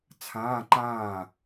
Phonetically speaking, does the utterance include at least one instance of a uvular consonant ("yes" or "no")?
no